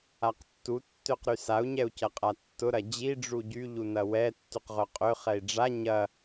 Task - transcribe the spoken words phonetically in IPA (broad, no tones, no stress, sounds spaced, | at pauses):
a q tː u tː ø q ɾ y s a u̯ ɲ ɛ u̯ c ɐ qʼ a tː ʊ ɾ ɐ d͡ʑ i ɖ͡ʐ u ɟ y ʎ u n ɐ w ɛ tː y q ʁ œ qʼ ø χ ɛ i̯ ɖ͡ʐ a ɲ ɐ